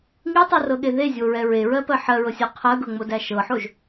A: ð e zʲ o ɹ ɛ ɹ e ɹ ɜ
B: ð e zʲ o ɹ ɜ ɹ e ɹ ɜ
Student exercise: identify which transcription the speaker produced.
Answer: A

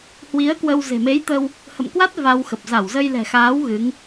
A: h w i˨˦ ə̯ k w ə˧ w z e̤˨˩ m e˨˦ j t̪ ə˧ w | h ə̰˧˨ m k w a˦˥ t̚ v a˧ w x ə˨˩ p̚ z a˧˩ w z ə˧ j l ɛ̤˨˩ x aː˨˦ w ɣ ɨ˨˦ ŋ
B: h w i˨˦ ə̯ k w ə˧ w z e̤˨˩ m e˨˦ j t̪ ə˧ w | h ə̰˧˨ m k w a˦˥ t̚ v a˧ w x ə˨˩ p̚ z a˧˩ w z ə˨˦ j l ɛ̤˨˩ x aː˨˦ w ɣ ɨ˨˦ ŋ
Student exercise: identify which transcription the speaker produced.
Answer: A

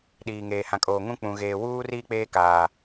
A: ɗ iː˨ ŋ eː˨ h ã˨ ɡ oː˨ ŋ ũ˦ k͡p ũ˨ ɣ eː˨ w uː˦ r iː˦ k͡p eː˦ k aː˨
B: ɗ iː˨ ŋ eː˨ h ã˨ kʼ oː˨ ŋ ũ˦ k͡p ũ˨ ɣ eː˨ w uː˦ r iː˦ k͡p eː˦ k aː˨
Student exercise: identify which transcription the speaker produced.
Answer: B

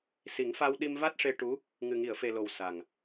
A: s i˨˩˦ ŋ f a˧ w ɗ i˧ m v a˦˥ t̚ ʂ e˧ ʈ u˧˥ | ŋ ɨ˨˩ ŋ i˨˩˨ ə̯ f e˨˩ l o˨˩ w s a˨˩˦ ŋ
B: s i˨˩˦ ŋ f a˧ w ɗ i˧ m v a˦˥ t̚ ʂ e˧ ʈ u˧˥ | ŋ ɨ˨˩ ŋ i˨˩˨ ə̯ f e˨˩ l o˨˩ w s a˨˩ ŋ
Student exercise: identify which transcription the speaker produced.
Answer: B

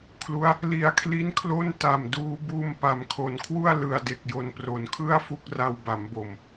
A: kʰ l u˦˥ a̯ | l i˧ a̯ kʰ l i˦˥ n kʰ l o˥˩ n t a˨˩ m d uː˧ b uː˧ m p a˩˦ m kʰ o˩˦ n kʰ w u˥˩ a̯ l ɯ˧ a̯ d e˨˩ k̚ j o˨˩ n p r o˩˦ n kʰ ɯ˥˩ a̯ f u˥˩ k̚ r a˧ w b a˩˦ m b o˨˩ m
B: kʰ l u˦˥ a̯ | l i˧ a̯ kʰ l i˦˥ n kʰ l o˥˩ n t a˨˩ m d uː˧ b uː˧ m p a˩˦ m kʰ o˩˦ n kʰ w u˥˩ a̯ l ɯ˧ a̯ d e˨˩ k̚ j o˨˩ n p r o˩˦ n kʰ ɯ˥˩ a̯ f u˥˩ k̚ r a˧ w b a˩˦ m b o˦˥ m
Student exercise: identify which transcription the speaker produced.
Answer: A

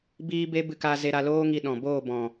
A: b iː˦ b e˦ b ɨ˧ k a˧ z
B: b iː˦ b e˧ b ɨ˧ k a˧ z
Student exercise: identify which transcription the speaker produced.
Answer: A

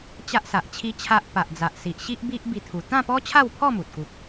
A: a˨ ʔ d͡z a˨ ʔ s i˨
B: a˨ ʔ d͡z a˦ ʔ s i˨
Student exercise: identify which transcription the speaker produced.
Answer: A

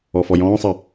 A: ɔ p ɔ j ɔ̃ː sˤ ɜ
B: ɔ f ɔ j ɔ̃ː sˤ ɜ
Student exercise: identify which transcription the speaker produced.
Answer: B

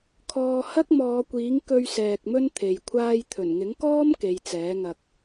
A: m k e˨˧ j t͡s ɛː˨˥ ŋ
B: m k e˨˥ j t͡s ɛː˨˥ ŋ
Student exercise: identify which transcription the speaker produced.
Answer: A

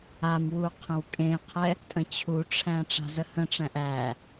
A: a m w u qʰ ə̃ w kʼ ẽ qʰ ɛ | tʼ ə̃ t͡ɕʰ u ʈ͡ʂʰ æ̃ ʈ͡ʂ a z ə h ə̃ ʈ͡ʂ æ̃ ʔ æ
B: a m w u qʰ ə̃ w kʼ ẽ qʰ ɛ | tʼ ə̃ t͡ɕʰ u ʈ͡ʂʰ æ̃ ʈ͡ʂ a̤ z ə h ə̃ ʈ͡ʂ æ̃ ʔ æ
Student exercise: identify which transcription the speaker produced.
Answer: B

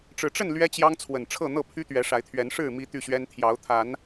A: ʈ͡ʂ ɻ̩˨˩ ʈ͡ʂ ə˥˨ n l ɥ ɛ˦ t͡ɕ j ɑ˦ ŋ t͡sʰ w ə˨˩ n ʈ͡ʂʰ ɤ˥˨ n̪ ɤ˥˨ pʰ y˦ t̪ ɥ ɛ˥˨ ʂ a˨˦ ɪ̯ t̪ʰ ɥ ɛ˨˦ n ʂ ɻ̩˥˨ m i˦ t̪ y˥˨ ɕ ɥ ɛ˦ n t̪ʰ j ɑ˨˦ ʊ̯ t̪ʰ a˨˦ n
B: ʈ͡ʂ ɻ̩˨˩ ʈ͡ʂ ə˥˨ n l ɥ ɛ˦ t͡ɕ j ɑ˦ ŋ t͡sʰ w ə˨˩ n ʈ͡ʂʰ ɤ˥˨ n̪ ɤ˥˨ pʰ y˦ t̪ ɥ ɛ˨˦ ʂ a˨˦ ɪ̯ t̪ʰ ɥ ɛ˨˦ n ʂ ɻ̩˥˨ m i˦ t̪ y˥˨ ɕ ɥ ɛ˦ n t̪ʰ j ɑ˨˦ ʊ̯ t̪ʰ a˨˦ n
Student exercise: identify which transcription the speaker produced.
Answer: B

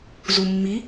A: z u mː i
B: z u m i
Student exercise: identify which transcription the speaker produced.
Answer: A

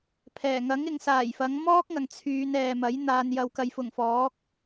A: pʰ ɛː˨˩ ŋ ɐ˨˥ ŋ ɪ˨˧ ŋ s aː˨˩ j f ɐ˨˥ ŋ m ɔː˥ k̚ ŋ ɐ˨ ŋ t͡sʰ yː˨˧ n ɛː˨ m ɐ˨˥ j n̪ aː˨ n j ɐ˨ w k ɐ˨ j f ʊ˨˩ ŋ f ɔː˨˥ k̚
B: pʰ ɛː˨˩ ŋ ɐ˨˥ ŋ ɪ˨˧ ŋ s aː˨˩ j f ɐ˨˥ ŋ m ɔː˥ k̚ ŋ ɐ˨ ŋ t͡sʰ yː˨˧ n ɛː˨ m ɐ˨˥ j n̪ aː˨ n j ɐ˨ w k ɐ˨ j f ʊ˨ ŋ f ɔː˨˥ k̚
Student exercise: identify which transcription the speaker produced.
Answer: A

